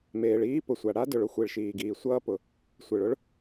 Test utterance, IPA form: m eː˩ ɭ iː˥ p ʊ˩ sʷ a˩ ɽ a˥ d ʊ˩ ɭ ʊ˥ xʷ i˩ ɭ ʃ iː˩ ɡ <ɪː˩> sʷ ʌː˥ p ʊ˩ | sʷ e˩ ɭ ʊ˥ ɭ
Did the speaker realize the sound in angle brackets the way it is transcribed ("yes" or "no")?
no